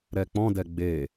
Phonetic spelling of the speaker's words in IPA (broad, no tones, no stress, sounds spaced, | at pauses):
ɾ ɛ k͡p ɔ̃ d ɛ ɡ͡b e